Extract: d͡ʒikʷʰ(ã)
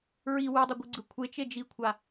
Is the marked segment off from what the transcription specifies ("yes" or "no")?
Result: yes